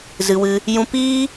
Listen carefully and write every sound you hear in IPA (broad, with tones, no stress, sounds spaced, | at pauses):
z ɨ˧ w ɨ˦ | j ũ˧ p iː˦